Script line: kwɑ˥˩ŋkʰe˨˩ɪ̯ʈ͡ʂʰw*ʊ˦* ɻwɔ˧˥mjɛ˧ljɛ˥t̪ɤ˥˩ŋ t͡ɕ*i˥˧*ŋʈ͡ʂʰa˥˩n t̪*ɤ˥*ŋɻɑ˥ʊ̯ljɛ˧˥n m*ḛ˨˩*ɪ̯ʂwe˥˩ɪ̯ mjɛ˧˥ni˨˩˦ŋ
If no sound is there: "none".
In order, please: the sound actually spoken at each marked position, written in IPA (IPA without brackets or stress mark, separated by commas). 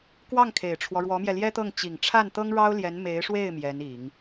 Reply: ɔ˦, i˨˩, ɤ˥, e˧˥